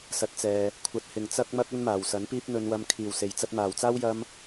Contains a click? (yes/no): no